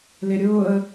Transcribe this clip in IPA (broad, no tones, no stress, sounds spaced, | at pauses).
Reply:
l ɪ ɾʲ ʊː ə̯